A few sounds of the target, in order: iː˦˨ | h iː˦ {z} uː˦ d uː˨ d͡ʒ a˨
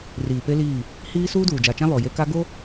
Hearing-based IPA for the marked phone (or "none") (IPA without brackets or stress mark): s